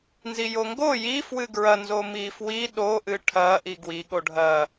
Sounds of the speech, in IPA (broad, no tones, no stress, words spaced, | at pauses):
nzijoŋɡo ji fwɨɡɹɐ nzomifwi ɗo ʔɨʈʰɐ ʔiɡwi ɠoɖʱɐ